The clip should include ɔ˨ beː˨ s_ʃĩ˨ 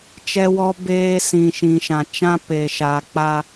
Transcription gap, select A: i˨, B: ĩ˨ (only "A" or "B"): B